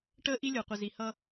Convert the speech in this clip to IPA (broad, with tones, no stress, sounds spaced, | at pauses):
ʈ əː˦ ʔ i˦ lʲ ʊː˨ qʷ i˨ z i˨ h ʌ˦